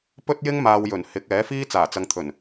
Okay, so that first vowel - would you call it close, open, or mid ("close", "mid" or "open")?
mid